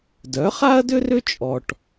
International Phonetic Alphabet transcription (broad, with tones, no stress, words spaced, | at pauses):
dœ˩˥χa˥ɐ̯dʏ˥rʏ˥ t͡ʃʼɔ˧ʈ